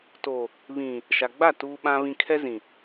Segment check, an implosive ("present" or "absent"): present